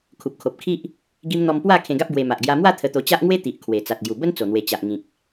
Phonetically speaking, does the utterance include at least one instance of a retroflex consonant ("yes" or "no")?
no